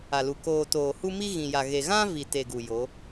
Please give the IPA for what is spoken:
a˨ l u˨ k oː˨ t oː˨ h u˦ m i˦ ɣ ĩ˨ j a˨ ɣ e˨ ɣ ã˦ v i˨ t e˨ ɡ u˨ j o˨˦

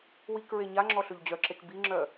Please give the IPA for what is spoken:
w i k ɹ e ɲ a ŋ͡ǁ ɔ ɬ ø ʎ d͡ʑ œ ǁ e k b i ŋ͡ǁ œ

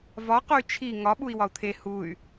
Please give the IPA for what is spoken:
v ɒ q o y̯ t͡ʃʰ i ŋ ɒ ɓ u i̯ w ɒ u̯ t̪ʰ e h u y̯

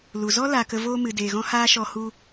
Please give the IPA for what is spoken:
l u˨ z ɔ˦ l a˧ k ə˧ v oː˦ m ɨ˨ d eː˨ ɣ ɔ̃˧ h aː˧ ʃ ɔ˧ h u˧

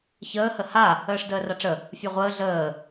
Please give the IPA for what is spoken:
ç əː h ə h a | əː ʂ d əː r a ʈ͡ʂ ə | fʲ ɒ ʁʷ əː ɮ əː

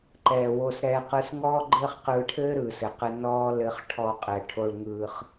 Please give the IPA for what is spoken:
ǃ ɛː˧ w o˦ s ɾ ɛː˦ q ɯː˦ s ŋ ɔː˦ ɡ͡ǃ ɘː˦ χ q ɯː˧ ʈʰ ɘː˦ ɾ ɯː˨ s ɘ˨ q ɘ˧ n ɔː˦ l ɘ˧ χ ʈʰ ɔ˧ qʼ ɛ˨ ʈʰ o˧ ɭ ŋ ɯː˧ χ

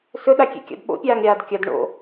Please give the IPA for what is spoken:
s ɵ ɗ a kʲ ḛ kʲ a̰ d ɓ o̰ pʲ aː ŋ ɾʲ aː d kʲ ɐ d ɳ o̰

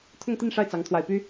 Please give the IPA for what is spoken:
t̪ʰ ʊ˥˧ ŋ t̪ i˥˧ n ʂ a˥˩ ɪ̯ t͡s ɑ˧˥ ŋ t̪ʰ w a˨˩ ɪ̯ p y˥

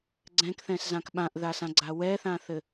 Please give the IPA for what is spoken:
ɡ͡ǀ ɛ̃ k θ ɛ̃ s z ã k ɓ ã ʔ ð a s ã ɡ͡ǀ a w ɛ θ ã θ ɘ

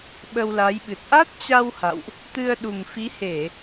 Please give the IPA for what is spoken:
ɓ ə˧ w l a˨˦ j ɓ ɨ˨˩ t̚ ʔ a˦˥ t̚ t͡ɕ a˧ w h a̰˧˨ w ʔ | t̪ ɨ˧ ə̯ ɗ u˨˩ m f i˨˦ h e˧˩˨

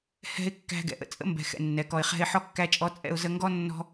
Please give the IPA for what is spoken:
h ɛ̤˧ ɪ̯ kː æ̤˧ ɡ ɛ̰˨ ʔ ə̰˨ t͡sʼ ə̰˦ m b ɛ̤˧ x ɛ̰˧ nː ɛ˨˦ k ɔ˧ ɪ̯ χ ɛ̤˦ ɪ̯ ħ ɔ˦ kː æ˦ t͡ʃʼ ɔ˦ t͡sʼ ɛ̰˦ ʊ̯ z ə˦ ŋ ɡ ɔ˦ nː ɔ̤˦

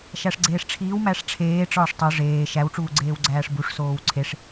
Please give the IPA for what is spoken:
ʃ æ ʂ ɡ͡ǀ eː ʂ ʈ͡ʂʰ iː w m æ ʂ ʈ͡ʂʰ eː ʈ͡ʂ ɒː ʂ tˤ o ʐ eː ʃ æ w ʈ͡ʂ uː ɡ͡ǀ eː w ɡ͡ǀ æː ʂ b u ʂ s oː w ǀʰ e ʂ

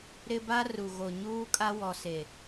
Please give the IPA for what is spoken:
ɾ ɪ˦ b a˦ r u˨ ɣ o˨ ɲ uː˦ kʼ a˦ w ɔ˨ s e˨

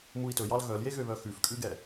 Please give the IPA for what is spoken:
m u i̯ t ɵ j ɑ l ɣ œ l j e ɣ ø β œ x ʉ f kʼ ʉ ɡ ɛ

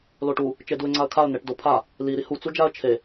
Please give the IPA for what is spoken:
l o ʈ u | t͡ʃ e d u ɪ̯ ŋ͡ǀ a ə̯ kʰ a ə̯ n̪ e ʈ d o pʰ a | l i ɾ i h u t͡s u d͡ʒ a ə̯ t͡ʃʰ e

